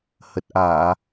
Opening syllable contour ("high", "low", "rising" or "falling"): low